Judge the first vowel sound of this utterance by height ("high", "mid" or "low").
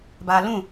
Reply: low